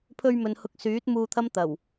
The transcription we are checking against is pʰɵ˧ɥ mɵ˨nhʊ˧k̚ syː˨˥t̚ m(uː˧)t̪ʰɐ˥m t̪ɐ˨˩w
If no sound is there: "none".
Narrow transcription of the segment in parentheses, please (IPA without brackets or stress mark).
uː˧